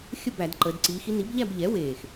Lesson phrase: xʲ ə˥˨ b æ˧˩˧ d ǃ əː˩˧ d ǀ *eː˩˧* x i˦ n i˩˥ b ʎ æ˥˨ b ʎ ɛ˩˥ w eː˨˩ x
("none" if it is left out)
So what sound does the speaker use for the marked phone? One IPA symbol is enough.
iː˩˧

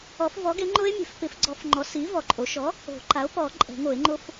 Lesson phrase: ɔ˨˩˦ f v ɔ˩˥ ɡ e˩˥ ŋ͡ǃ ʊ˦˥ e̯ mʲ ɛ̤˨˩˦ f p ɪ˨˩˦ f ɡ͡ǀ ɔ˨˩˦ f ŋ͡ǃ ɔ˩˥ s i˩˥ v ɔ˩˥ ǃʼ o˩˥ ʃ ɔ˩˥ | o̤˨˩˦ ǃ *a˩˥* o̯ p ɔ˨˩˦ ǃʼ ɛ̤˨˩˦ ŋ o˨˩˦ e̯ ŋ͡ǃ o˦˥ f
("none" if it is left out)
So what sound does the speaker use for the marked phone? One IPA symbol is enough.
a˩˥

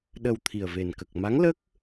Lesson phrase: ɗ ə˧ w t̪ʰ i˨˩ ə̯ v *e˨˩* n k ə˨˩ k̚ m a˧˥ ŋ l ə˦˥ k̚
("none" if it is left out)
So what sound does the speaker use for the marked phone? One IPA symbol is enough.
e˨˩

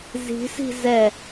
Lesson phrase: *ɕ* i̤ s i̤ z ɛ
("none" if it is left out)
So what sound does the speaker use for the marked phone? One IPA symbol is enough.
z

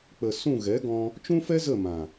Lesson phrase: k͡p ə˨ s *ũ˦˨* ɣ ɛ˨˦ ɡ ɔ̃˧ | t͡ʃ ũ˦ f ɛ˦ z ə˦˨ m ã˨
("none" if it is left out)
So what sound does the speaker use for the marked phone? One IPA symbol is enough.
ũ˦˨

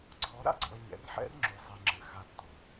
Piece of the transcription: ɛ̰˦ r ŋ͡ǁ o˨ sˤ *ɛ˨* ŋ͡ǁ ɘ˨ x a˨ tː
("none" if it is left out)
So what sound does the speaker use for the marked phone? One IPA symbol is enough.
ɛ˨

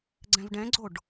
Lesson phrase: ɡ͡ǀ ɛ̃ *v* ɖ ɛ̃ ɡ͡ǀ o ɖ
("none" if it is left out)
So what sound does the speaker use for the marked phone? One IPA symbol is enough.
v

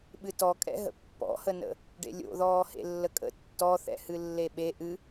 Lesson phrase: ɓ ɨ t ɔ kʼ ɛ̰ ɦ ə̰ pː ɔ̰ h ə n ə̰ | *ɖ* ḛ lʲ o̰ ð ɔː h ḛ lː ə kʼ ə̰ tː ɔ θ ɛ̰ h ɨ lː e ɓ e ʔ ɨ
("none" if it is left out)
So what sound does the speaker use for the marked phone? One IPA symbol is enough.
ɖ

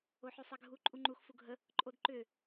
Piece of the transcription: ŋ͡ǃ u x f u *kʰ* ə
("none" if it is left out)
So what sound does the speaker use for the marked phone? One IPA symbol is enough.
ɡʱ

